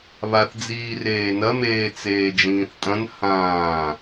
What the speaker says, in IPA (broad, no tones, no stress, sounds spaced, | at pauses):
β a θ d͡z iː r eː n ɐ m eː t͡s eː d͡ʒ ĩː θ tʼ ɐ̃ n h ãː